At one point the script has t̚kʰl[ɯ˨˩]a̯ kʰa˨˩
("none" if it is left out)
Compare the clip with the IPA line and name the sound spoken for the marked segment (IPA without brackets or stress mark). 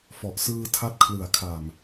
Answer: ɯ˨˩